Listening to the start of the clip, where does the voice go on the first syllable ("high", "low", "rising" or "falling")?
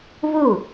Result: falling